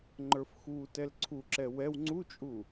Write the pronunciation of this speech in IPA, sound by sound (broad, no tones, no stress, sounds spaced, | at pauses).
ŋ͡ǃ ə˞ f x u t ɛ l ǀʰ u ǁ ɛ w ɛ w ŋ͡ǀ u t͡ʃʼ u